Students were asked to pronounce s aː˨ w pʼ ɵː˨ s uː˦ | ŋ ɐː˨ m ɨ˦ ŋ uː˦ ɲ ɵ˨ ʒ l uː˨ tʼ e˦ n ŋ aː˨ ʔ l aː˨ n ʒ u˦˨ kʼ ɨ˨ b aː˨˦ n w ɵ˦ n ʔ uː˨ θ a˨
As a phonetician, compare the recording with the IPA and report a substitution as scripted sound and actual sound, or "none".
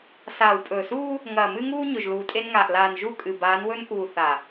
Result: none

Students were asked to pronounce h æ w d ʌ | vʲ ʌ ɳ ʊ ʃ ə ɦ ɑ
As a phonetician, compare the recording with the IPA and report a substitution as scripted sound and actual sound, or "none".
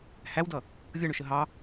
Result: none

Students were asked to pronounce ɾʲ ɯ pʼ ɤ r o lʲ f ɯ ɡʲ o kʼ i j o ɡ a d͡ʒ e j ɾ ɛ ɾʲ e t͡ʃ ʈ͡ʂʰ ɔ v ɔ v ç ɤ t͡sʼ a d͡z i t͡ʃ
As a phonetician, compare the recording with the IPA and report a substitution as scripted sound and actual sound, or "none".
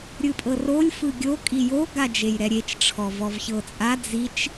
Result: none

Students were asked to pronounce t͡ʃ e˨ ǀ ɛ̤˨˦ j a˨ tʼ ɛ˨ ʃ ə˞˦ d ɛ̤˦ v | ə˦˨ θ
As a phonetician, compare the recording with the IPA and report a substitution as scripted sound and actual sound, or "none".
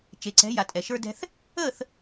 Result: v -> θ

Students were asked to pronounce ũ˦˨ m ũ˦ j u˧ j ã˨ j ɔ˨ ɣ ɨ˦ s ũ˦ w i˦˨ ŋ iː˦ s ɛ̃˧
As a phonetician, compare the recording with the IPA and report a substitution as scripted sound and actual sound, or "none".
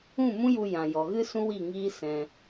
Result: none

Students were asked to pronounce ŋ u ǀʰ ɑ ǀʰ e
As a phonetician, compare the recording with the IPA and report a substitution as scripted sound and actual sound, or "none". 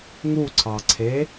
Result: none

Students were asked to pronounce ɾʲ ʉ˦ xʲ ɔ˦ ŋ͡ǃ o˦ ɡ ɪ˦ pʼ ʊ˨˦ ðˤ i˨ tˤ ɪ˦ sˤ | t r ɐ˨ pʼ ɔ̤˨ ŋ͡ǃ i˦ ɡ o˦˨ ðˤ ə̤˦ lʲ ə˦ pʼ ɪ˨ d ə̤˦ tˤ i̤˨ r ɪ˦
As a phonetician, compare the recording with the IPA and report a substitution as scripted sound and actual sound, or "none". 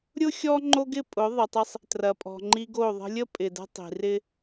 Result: ʉ˦ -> ʊ˦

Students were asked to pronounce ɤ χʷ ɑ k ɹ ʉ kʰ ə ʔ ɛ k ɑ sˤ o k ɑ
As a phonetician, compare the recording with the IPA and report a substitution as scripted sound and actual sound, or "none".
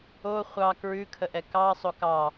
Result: ɤ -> o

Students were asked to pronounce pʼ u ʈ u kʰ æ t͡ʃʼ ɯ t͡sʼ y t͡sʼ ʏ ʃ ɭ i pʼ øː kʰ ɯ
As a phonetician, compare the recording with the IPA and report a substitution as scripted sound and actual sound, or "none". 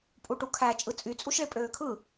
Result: ʏ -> u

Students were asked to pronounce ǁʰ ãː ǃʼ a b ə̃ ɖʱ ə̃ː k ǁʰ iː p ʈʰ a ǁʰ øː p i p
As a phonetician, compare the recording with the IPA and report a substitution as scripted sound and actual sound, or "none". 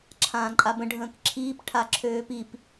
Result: none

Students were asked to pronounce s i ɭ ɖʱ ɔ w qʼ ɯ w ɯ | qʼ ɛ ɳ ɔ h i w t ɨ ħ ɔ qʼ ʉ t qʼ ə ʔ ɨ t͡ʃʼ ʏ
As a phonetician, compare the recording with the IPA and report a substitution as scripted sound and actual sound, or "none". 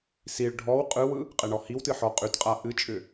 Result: ə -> a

